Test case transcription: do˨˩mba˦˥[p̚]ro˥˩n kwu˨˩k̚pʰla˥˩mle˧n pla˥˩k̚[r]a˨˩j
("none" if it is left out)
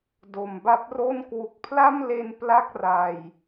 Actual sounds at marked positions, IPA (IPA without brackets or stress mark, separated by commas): p̚, r